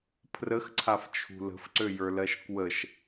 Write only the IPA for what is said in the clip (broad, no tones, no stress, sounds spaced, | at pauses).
pʰ r ə x ǀʰ a f t͡ʃʰ ṳ l ə̤ f ǀ ø j ə˞ l ɜ ʃ k w ə ʃ